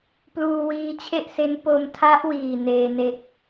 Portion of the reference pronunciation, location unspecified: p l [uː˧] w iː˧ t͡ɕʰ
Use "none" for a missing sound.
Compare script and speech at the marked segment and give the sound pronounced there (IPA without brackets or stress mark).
uː˧